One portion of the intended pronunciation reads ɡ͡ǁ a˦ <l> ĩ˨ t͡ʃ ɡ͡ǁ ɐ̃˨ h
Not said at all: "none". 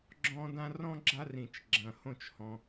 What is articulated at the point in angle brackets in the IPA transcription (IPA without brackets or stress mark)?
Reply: r